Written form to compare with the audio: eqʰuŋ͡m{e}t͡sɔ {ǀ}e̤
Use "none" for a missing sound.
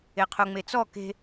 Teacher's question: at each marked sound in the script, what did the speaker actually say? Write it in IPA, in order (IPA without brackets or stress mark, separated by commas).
e, k